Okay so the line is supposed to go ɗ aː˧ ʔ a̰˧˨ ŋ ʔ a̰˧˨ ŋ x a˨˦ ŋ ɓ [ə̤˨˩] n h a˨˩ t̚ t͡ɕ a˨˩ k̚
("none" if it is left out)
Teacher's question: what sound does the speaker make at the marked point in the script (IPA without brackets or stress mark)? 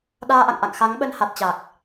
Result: ə˧